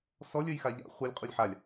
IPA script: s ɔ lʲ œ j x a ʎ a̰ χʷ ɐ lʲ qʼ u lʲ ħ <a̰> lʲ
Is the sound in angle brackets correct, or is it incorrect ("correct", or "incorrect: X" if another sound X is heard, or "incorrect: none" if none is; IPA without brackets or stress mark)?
incorrect: a